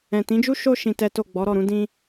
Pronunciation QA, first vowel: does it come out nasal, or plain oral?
nasal